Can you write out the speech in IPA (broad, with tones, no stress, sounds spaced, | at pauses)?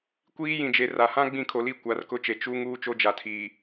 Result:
kʷ iː˦ j ĩ˨ d͡ʒ e˨ r a˨ h ã˦ ɡ͡b ĩ˦˨ kʰ o˨ l i˦˨ kʷ a˨˦ r k ʊ˦ t͡ʃ e˨ t͡ʃ u˦ ŋ uː˦ t͡ʃ o˦ d͡ʒ a˨ tʰ iː˨